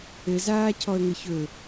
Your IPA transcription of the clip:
ɘ z aː cʰ ɔ ə̯ ŋ ɘ ç ɵ

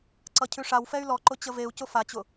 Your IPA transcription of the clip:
ǀ ʌ cʰ ʉ ʂ a w f ɛ y̯ l ɔ ǃ ʊ t͡ɕ ə v e u̯ c ʊ f a t͡ɕ ʊ

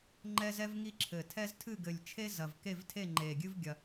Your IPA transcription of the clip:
ŋ͡ǃ ɛ˥ z ɛ˥ v ŋ i˥ ǁʰ ɘ˨˩ tʰ ɛ˥ z tʰ ɨ˥˨ ɡ ɘ˨˩ lʲ t͡ʃʰ e˥ z ɐ˨˩ v k e˥˨ v tʰ e˥˨ ŋ͡ǃ e˨˩ ɡʲ ɨ˥ v ɡʲ ɐ˨˩

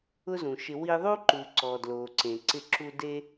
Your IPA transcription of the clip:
ʊ˦ z ũ˨ ʃ ɪ˧ w i˧ ðˤ u˦ ǃ u˨ ǀ ɔ˨ d l o˨ ǀ ẽ˨ ǀ ɪ˧ ǁ u˧ d e˦

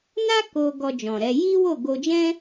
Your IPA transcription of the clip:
n a˦ k o˧ ɡ ɔ˧ d͡ʒ ɔ̃˨ ɾ ɛ˧ j i˦ w o˦˨ ɡ o˧ d͡ʒ ɛ̃˦

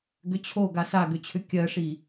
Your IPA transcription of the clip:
ɡ ʏ t͡ɕʰ o ɡ a s a ɡ ʏ t͡ɕʰ ʏ kʲ ɜ ʂ i

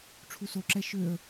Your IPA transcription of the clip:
ʈ͡ʂʰ u s o ǁ ɛ ʃ ø ə̯

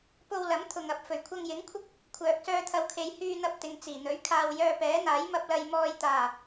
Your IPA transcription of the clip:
p o˧ w l ɐ˨˥ m t̪ʰ ʊ˨ ŋ ɐ˨ p̚ f ɵ˨˩ ɥ kʷʰ ɐ˧ ŋ j ɪ˨˥ ŋ kʷʰ ɪ˥ k̚ | kʷʰ œː˨ k̚ s œː˧ t̪ʰ ɐ˨ w kʰ e˨˧ j h yː˧ n̪ ɐ˧ p̚ t̪ ɪ˨ ŋ t͡s iː˨˩ n̪ ɵ˨˥ ɥ kʰ aː˧ w j œː˧ p ɛː˨˥ n̪ aː˨˥ j m ɐ˧ p̚ l ɐ˨ j m ɔː˨ j t̪ aː˨˩

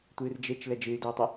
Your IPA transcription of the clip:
tʷ ɨː r d͡ʒ e t͡ʃ l ɛ d͡ʒ ɨ y̯ d ɯ u̯ tˤ ɨ

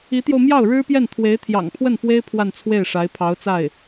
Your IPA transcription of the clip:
i˧˥ t̪ j o˧ ʊ̯ m j ɑ˥˩ ʊ̯ ɻ ɻ̩˥ p j ɛ˥˩ n t̪ʰ w e˧˥ ɪ̯ t̪ʰ j ɑ̰˨˩ ŋ pʰ w ə˥˩ n f w e˥ ɪ̯ pʰ w a˥˧ n t͡sʰ w e˥˩ ɪ̯ ʂ a˧˥ ɪ̯ pʰ ɑ˧˥ ʊ̯ t͡s a˥˩ ɪ̯

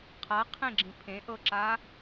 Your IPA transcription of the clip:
qʰ a qʰ ẽ ɡ͡ǁ ĩ pʰ ẽ ʔ ɤ ǁ aː

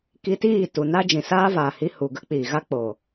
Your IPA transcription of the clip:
k i˧ t iː˦˨ t u˨ n a˦ d͡ʒ ĩ˨ s aː˦ v aː˨ h i˧ h u˨ ɡ ə˦ k͡p iː˨ ɣ a˦ k͡p oː˨

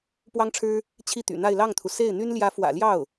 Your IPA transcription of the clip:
p w ɑ˥ ŋ ʈ͡ʂʰ ɻ̩˥ | t͡ɕʰ i˥˩ t̪ y̰˨˩ n̪ a˥˧ ɪ̯ l ɑ˥˩ ŋ t̪ʰ u˩ s e˥˩ ɪ̯ n̪ y˥ n l j ä˧˥ f w ä̰˨˩ l j ɑ˥˩ ʊ̯

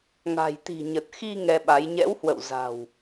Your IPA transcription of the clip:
ŋ a̤˨˩ j t̪ i̤˨˩ ɲ ə˨˩ t̚ x i˧ ŋ ɛ˧ ɓ a˨˦ j ɲ ɛ̰˧˥ w h w ə̰˧˨ w z a̤˨˩ w

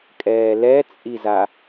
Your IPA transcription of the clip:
kʼ ɛː l ɛ t͡sʼ i z a

